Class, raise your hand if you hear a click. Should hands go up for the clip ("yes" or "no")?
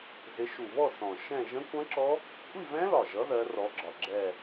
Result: yes